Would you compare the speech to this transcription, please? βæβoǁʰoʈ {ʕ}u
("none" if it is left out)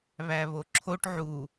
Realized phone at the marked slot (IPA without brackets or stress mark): ʕ